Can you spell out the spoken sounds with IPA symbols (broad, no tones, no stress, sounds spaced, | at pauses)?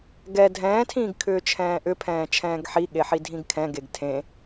ɡ ɛ dʱ ɛ̃ː tʰ ĩː ɡ kʰ ʏː t͡ʃʰ ɛ̃ː ʔ ʏ pʰ ɛ̃ː t͡ʃʰ ɛ̃ː ɡ ħ i ɠ e ħ i dʱ ĩ ɡ kʰ ɛ̃ ɡ e ɡ tʰ ẽ